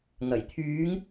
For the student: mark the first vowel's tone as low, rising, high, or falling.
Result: low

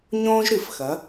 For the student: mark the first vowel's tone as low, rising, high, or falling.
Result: high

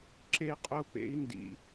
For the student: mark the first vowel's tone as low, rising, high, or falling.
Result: high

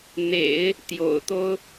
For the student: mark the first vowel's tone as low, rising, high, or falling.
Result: low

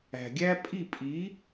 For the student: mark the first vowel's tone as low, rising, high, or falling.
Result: low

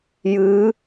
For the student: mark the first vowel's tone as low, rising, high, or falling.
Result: rising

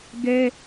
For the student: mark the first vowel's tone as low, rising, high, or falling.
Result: high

